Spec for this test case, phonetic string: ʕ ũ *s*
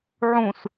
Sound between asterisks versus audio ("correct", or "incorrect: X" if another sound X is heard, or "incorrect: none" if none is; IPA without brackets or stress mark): correct